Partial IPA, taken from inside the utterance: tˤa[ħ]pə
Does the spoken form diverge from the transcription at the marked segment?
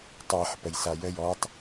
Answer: no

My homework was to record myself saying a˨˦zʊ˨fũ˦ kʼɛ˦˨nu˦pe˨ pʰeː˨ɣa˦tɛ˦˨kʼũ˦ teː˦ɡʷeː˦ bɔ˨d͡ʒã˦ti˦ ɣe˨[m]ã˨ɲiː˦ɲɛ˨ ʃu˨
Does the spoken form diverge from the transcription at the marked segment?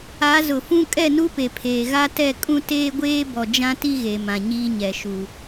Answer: no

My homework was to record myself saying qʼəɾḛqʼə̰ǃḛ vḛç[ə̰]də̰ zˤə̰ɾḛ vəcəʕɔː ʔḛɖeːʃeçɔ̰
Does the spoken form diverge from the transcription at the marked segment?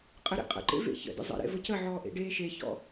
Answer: no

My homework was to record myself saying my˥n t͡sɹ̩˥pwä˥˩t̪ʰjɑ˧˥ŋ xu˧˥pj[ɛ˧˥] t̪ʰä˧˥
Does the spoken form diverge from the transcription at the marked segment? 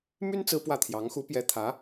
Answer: no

